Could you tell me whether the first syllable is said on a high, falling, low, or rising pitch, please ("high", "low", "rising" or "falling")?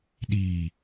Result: low